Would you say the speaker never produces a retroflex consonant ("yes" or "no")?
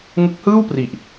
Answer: yes